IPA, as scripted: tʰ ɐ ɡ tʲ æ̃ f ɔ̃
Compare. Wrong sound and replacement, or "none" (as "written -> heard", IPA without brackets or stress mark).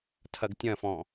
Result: æ̃ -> ɐ̃